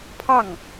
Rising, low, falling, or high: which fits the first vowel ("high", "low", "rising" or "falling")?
falling